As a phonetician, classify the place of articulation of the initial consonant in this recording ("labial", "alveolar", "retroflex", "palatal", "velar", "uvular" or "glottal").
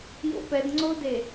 palatal